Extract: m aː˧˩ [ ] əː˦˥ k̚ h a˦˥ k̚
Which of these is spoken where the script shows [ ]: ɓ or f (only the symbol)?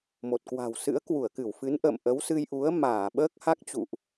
ɓ